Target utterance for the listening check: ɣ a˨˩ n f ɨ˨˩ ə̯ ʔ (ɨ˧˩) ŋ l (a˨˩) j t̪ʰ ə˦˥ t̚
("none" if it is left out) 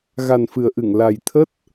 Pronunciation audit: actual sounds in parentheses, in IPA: ɨ˧˩, a˨˩

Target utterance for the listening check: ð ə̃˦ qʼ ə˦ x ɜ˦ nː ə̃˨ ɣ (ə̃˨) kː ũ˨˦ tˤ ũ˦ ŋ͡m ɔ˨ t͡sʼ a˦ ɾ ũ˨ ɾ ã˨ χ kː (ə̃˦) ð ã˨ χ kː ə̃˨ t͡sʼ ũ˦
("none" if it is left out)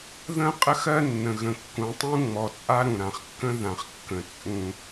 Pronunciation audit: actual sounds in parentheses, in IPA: ə̃˨, ə̃˦

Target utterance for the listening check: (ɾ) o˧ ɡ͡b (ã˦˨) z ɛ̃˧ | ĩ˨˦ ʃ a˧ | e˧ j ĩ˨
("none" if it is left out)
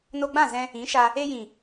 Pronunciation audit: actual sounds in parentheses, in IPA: n, ã˦˨

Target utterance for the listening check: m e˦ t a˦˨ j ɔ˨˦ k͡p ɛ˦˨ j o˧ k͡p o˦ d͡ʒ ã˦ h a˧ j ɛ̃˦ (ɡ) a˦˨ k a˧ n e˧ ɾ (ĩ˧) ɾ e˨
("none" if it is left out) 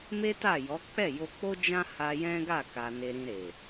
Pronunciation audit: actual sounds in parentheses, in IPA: ɡ, ĩ˧

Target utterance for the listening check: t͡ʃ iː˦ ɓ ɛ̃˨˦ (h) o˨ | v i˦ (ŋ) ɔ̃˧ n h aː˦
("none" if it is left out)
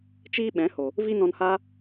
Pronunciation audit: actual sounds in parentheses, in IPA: h, n

